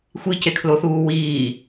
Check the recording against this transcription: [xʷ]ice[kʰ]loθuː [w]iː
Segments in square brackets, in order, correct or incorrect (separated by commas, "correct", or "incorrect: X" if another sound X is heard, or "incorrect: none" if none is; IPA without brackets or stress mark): correct, correct, correct